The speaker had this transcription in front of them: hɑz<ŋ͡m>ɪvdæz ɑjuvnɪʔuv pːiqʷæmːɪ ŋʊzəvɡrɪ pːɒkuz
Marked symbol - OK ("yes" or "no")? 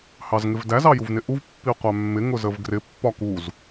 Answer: no